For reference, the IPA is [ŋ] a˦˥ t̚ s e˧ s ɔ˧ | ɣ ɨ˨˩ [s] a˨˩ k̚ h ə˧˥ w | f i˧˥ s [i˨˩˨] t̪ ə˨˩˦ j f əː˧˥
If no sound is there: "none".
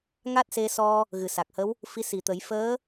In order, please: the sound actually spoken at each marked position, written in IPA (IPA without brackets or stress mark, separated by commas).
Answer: ŋ, s, i˨˩